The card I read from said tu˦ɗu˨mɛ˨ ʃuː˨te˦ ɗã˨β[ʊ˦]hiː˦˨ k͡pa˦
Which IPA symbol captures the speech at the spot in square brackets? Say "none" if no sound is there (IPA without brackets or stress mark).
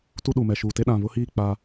ʊ˦